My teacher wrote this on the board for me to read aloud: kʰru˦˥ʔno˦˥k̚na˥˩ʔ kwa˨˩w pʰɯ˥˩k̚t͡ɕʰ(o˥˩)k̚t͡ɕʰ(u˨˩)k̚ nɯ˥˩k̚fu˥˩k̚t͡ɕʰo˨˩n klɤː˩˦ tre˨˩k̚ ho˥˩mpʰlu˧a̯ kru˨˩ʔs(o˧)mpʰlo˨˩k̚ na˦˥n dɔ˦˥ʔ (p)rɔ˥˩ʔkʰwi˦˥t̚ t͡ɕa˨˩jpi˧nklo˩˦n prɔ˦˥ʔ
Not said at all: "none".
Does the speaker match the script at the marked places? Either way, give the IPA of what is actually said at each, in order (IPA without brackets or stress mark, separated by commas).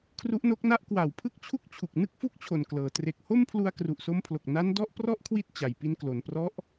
u˥˩, u˨˩, o˧, p